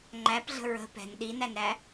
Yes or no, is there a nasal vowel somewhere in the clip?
no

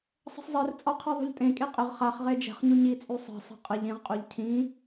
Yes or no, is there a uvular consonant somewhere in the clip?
yes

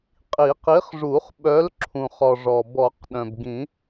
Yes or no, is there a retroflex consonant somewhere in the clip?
yes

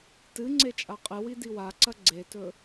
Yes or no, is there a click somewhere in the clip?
yes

